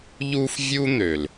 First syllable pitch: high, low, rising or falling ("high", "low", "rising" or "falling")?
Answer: high